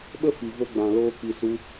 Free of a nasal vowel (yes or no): no